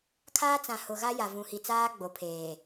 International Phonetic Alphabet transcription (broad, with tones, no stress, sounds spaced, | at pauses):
kʰ aː˦ t͡s ã˨ h ʊ˨ ɣ a˦ j a˨ v ũ˨ h i˨ t͡s aː˦ ɡ͡b o˨ pʰ eː˨